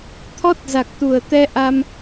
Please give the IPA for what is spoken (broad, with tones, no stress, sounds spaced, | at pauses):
t̪ʰ ɔ˦˥ t̚ z a˨˩ k̚ t̪ u˨˩ ə̯ t̪ ɛ˧ ʔ a˧ m